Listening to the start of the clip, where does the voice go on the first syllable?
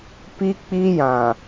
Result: high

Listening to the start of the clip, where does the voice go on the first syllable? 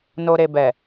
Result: low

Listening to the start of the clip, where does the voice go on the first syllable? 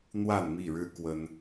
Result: falling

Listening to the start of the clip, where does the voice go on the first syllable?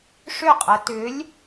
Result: falling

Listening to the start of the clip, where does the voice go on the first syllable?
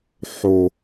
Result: low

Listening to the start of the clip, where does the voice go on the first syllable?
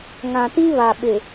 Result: low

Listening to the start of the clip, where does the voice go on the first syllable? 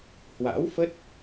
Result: rising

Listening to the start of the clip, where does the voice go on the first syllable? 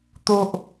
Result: low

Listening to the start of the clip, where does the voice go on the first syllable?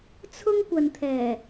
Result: high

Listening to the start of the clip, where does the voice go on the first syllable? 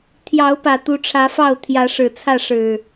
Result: rising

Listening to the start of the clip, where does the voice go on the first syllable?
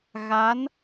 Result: rising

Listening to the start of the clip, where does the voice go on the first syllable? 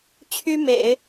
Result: high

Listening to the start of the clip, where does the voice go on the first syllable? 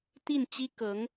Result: falling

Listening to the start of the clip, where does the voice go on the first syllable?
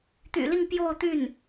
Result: low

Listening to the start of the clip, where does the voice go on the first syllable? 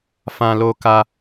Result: high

